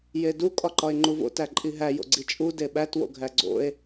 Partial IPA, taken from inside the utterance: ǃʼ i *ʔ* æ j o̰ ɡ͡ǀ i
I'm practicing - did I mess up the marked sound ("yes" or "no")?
yes